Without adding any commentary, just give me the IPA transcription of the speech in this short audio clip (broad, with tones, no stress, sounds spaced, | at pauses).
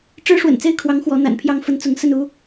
ʈ͡ʂ ɻ̩˥ ʂ w ə̰˨˩ n t͡s e˥˩ ɪ̯ kʰ w ɑ˧˥ ŋ x w ɔ˧˥ n̪ a̰˨˩ n pʰ j ɑ˥˩ ŋ f ə˥ n t͡s ʊ˧˥ ŋ s ə˥˩ n u˥